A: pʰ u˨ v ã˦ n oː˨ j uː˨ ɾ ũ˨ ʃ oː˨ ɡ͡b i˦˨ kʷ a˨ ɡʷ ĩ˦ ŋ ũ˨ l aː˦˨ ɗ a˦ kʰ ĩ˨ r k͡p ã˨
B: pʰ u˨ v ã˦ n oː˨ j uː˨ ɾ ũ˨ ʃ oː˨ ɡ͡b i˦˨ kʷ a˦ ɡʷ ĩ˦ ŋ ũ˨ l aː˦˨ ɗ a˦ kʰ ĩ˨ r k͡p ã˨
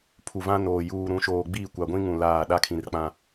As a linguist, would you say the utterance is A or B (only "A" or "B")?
A